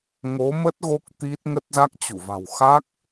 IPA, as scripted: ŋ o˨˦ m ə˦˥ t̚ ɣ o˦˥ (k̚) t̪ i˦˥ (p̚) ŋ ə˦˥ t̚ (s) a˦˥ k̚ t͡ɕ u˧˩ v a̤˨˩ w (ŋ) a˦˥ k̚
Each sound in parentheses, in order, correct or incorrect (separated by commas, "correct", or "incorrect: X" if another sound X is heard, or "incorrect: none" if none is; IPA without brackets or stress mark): correct, incorrect: t̚, incorrect: z, incorrect: x